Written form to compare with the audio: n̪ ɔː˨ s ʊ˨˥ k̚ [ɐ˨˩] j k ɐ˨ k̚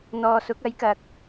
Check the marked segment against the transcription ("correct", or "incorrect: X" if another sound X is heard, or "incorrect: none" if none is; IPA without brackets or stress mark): incorrect: ɐ˨˥